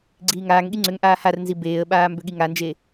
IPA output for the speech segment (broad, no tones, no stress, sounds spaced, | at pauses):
ɡ͡ǀ iː ŋ aː ŋ ɠ i ŋ͡ǀ ʏ ŋ ʔ aː h a r n z i b eː ə̯ ɓ aː m b ʏ ɠ i ŋ a n d͡ʒ e